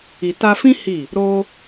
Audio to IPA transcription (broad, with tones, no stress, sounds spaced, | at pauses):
i˨ t a˧ f ĩ˦ h i˦˨ | ɾ o˧